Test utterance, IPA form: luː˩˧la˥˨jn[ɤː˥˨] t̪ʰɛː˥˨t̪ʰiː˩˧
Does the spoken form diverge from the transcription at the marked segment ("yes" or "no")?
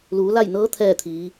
yes